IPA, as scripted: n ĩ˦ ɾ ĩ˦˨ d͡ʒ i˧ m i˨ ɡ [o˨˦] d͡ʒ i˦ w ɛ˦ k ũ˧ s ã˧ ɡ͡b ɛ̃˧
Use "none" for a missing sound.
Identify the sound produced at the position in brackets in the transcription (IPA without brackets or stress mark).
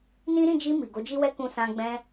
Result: o˨˦